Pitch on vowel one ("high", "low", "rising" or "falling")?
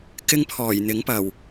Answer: high